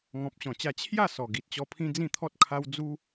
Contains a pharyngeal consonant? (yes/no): no